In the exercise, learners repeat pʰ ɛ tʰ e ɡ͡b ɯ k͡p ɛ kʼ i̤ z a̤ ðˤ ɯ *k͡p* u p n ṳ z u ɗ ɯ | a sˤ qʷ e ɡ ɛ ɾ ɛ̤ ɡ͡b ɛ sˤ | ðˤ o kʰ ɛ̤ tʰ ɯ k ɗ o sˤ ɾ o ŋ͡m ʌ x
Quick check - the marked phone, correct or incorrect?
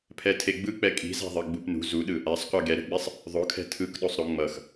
incorrect